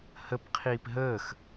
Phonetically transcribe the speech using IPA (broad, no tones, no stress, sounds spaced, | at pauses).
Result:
h ə p qʰ iː p ɦ əː x